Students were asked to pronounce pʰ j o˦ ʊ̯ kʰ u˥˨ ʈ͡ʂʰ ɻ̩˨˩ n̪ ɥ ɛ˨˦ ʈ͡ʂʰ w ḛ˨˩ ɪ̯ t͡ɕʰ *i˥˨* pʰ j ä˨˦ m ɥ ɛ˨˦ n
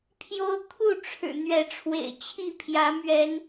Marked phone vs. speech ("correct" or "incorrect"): correct